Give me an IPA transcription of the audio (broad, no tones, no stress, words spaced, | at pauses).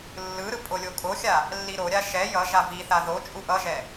lːɯɾɯ pʼolʲokʼoxʲa | lːiɾoɾʲa ʃɛ jʌ ʒaviθa ðot͡ʃʼu ʔʌʒɛ